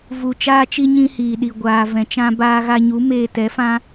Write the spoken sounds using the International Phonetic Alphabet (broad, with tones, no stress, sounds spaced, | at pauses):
v u˨ t͡ʃ aː˦ t͡ʃ i˦ ɲ ĩ˦ h iː˨ ɗ i˨ ɡʷ aː˨ v ɛ̃˨ t͡ʃ ã˧ b aː˧ ɣ a˧ ɲ u˨˦ m eː˧ t ɛ˨˦ f ã˦